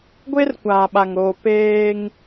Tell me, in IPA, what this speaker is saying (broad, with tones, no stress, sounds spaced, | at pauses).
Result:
ɡʷ e˦ r kʷ aː˨ ɓ a˨ ŋ ɾ oː˨ p eː˦ ŋ